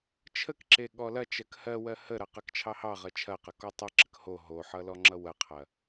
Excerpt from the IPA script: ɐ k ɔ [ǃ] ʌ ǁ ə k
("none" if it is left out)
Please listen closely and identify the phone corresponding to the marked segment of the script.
tˤ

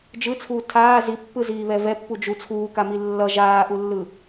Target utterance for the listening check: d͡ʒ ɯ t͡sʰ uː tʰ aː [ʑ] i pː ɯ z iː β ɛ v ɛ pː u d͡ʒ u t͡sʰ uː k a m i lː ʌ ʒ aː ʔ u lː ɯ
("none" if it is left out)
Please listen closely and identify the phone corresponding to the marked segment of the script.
z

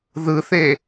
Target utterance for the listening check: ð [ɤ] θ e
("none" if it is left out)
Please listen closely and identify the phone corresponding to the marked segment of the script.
ɯ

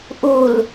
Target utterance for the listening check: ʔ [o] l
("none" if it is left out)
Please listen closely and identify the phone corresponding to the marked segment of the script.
u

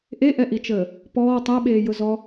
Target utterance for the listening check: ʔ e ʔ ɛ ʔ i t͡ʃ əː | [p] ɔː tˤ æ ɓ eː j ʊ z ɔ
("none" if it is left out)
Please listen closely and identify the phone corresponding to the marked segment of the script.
p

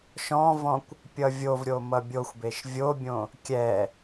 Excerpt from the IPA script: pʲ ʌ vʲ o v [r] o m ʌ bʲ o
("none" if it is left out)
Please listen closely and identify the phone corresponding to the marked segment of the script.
ɾʲ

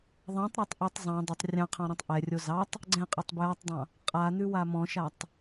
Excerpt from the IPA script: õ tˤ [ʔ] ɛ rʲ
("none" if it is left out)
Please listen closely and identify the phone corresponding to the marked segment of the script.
ʔ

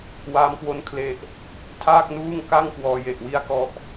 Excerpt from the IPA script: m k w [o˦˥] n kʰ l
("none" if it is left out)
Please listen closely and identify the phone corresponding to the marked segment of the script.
o˦˥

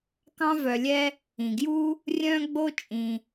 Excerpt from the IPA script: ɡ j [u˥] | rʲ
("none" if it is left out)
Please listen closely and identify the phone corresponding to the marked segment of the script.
u˥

